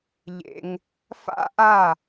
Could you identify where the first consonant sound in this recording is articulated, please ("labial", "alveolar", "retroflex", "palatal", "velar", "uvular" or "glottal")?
palatal